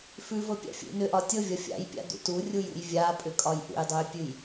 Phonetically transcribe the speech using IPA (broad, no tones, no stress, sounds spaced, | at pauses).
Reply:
f ʉ v ɤ pʲ a̰ fʲ ṵ n ʏ ʔ ɒ tʲ ɤ vʲ ɒ fʲ a̰ j pʲ a̰ d ṵ t u rʲ u j ṵ j vʲ a pʼ ʏ kʼ ɒ j ʔ ṵ j dˤ u j pʲ ʉ j